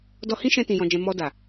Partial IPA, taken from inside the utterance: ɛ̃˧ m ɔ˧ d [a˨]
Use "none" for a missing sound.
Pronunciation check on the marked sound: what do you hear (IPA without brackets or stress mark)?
a˨